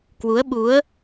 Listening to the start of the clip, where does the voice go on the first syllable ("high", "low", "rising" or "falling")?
rising